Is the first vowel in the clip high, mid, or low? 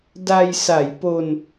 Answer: low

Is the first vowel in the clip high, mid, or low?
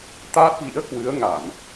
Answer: low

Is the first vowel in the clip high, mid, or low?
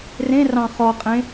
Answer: mid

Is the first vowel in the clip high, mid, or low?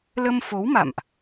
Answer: mid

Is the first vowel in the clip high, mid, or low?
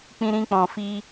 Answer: high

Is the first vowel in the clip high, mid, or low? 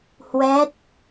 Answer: mid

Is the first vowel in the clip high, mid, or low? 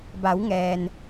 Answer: low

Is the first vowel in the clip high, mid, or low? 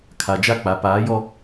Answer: low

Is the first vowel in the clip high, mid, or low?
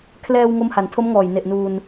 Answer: mid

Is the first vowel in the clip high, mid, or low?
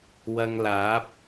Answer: low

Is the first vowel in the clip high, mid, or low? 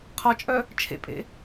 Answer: low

